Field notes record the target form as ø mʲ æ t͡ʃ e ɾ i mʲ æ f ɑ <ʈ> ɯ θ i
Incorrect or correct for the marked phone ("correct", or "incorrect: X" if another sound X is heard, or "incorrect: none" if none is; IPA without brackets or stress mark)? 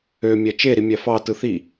incorrect: t